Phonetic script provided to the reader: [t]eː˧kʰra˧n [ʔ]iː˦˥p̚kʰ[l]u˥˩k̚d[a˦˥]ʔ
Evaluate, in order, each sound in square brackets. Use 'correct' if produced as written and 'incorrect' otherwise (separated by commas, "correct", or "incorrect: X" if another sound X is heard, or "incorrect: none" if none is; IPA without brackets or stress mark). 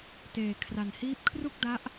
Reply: correct, incorrect: h, incorrect: r, correct